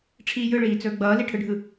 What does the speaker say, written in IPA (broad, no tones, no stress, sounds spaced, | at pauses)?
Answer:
ʈ͡ʂʰ iː j ɯ ɭ iː t͡s ɵː ɡ͡b ʌː l i ʈʰ ɯ ɖʱ ɯ